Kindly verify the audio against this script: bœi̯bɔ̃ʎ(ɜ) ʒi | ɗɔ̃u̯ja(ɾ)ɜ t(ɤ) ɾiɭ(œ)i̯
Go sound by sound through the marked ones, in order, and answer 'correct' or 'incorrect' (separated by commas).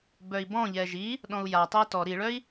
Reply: incorrect, incorrect, incorrect, correct